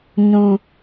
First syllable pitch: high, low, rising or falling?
high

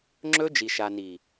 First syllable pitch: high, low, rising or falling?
high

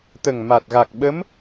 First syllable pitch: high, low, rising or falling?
low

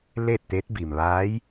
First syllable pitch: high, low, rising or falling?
falling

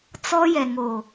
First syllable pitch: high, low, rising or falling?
high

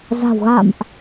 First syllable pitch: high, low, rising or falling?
low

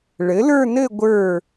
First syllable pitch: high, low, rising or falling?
rising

